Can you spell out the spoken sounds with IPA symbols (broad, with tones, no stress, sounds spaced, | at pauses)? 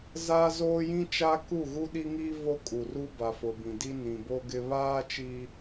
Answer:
z aː˦ z oː˦ j ĩ˦ t͡ʃ a˦ k u˦˨ ɣ u˦ ɗ i˦ ŋ iː˦ v o˦ kʼ u˨ r u˦ b a˨ f ʊ˨ b ĩ˨ d i˦ n ĩ˨ b o˦ ɡ ɪ˦ β aː˦ t͡ʃ iː˦